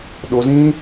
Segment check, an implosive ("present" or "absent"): present